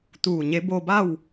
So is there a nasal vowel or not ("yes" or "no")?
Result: no